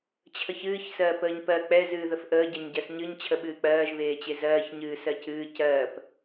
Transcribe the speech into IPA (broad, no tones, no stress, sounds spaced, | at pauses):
t͡ɕʰ ə ç ɨː ç s ɜː p əː ɲ p ɜ k͡p ɛ z ɨː ð ə f ʔ əː ɟ ɜ ɲ ɟ ɜ s ɲ ɨ ɲ t͡ɕʰ ə ɓ ɨː k͡p ɜː ʒ β eː t͡ɕ e z ɜː ç ɲ ɨː s ɜ c ɨː c ɜː p